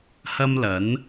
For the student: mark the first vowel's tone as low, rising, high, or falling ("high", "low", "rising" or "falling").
high